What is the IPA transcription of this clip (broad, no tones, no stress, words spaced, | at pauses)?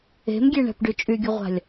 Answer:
e̤mɡʲeɳɛ̤pɖy t͡ʃʼyɡʲʊʁʷa̤lʲ